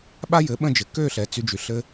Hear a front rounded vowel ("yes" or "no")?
yes